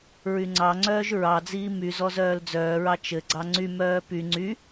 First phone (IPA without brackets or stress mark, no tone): ɹ